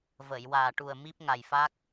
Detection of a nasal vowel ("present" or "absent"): absent